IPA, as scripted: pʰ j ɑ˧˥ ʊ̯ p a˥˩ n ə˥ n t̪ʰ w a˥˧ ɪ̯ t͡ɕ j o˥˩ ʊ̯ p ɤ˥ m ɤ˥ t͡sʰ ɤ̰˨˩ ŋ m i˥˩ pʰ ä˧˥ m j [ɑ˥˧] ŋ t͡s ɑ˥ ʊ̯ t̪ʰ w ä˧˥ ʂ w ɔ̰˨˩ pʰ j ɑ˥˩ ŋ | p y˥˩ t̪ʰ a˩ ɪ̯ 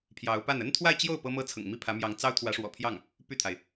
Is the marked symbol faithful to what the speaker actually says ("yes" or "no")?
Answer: no